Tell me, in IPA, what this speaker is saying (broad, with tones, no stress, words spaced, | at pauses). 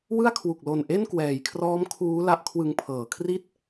wɯ˥˩a̯kʰwu˨˩k̚lo˨˩n ʔe˥˩nkwɛː˩˦jkʰrɔː˦˥m kʰuː˦˥ la˦˥ʔkʰwɯ˧ŋpʰɤː˩˦ kʰri˥˩t̚